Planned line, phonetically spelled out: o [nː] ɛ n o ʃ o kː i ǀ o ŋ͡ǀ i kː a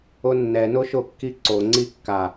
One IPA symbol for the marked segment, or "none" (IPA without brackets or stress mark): nː